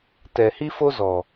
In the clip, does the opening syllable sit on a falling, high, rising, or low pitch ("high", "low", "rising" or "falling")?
low